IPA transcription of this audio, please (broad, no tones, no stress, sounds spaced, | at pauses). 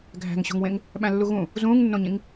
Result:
ɡʱ æ̤ ŋ ɕ o̤ ŋ w ẽ ŋ | ɓ æ̃ lː u ɣ ũ | z ũː ŋ nː õ ɲ ĩ ŋ